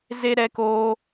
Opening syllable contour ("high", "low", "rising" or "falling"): high